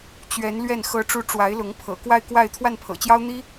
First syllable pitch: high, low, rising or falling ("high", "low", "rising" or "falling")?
rising